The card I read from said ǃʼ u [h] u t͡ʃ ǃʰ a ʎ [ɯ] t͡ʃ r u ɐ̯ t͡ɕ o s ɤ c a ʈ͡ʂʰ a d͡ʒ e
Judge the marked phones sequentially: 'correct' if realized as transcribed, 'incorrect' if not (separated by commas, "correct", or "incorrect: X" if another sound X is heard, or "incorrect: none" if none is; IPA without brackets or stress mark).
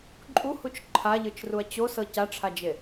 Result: correct, correct